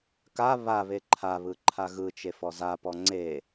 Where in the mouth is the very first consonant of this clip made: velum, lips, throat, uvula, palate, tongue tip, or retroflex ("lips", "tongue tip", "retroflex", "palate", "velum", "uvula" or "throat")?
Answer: velum